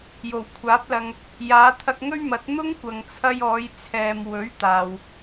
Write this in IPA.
j o˨˩ w kʷʰ aː˨˥ p̚ l ɐ˧ ŋ | j aː˨˧ t̪ʰ ɐ˧ k̚ ŋ ɵ˥ ɥ m ɐ˨˥ t̚ n̪ ʊ˥ ŋ kʷ ɐ˨ ŋ t͡sʰ ɐ˧ j ɔː˨˧ j t͡sʰ ɛː˨ m w ɵ˨˥ ɥ t̪ aː˨ w

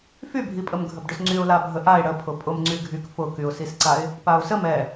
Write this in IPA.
f y bʱ i pʼ ə m ɡʱ ə b ɖ ʏ s ŋ͡ǀ y ʊ̯ l a bʱ ə ʔ a ɪ̯ ɽ ə pʰ ʊ pʼ ʊ m ŋ͡ǀ y ɡʱ y k f ʊ k y ʊ̯ s i s ǀ a ɪ̯ | p a ʊ̯ s ə m ɛ

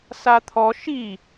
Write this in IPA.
s a t̪ʰ ɔ ʃ i

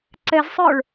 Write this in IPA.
ǀ ɛ z sˤ ə˞ ɭ

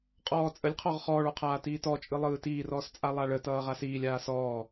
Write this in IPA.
qʼ ɔː t͡sʼ ə lʲ qʰ ɔ ʁ χ ɔː ɭ ɔ qʰ aː t iː t ɔ t͡ʃʼ ɯ lˠ ɯː t iː r ɔː s t͡sʼ a lˠ a ɭ ə t ʌː ʁ a s iː lʲ aː s ɔː

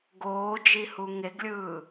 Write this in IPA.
ɡ oː d͡ʒ i h u ŋ e ɡ lʲ ɯː

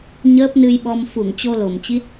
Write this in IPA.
ɲ əː˦˥ p̚ n ɨ˧ j ɓ ɔ˧ m f u˧˩ ŋ t͡ɕ o˧ l o˧˩ m t͡ɕ i˦˥ t̚

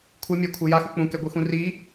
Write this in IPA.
kʷʰ ɯ mʲ ɛ kʷʰ ɯ j a x u k͡p ũ k ɛ ɡʷ ɯ x ũ r i

